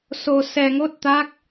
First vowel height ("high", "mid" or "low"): mid